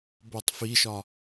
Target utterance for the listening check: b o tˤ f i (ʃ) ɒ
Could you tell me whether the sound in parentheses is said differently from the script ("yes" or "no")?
no